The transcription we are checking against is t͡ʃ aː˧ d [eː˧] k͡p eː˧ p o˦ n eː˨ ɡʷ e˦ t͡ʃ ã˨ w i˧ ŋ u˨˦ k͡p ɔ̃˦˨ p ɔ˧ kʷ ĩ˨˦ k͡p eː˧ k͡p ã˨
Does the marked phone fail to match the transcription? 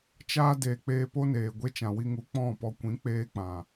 yes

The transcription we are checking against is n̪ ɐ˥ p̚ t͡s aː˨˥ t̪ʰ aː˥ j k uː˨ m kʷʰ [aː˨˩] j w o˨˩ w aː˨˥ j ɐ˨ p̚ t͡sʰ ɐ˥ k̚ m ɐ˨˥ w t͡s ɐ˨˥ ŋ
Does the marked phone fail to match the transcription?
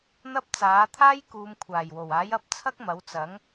no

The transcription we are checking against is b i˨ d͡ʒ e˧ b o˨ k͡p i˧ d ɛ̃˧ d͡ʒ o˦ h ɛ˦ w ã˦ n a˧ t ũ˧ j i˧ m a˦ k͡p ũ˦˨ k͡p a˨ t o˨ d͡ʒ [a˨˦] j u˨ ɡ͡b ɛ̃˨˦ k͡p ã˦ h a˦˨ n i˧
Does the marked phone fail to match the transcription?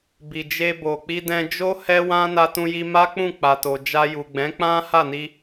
yes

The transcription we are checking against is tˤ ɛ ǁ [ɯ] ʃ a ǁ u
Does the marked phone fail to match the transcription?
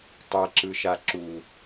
no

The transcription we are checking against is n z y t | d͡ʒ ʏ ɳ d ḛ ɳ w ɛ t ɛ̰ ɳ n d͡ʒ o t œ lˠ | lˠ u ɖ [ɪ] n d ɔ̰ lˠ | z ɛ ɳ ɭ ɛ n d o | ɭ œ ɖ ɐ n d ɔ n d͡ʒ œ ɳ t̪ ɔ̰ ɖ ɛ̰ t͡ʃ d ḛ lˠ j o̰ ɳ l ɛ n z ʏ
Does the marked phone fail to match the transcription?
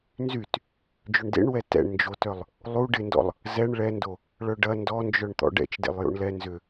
no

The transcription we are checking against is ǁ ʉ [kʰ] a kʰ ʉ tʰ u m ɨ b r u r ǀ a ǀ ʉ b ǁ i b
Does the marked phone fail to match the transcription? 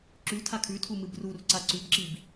yes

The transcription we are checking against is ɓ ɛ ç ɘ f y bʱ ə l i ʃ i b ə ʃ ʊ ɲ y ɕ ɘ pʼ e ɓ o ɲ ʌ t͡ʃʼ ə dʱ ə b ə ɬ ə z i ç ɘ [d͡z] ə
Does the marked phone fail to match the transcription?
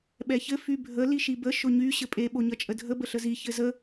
yes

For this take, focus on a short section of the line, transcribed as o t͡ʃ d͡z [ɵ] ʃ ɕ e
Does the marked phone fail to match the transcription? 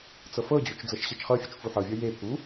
yes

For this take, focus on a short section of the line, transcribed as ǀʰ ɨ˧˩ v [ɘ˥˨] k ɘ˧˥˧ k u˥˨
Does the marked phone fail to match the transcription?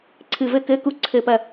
no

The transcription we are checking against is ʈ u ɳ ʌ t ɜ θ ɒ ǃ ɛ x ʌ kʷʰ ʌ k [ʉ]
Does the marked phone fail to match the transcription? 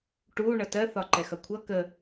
yes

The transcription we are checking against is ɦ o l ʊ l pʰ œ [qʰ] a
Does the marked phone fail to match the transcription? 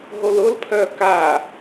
yes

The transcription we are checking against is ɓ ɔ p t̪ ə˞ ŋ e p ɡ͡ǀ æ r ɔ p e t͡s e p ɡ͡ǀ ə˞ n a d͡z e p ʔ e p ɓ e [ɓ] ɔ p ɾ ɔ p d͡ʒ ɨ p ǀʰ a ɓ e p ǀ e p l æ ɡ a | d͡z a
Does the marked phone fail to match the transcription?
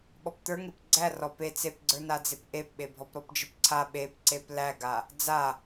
yes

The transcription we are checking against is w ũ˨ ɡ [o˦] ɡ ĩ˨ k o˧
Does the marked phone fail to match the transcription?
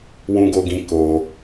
yes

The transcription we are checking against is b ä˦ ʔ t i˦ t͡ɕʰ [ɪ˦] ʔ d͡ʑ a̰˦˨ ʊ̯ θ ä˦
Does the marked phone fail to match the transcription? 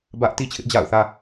no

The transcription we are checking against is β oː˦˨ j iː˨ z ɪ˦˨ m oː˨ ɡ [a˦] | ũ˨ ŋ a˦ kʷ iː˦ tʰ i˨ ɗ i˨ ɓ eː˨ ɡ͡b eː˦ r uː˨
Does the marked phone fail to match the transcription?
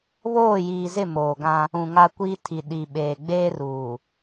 yes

